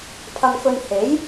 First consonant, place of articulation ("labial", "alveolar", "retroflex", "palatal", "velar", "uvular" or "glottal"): labial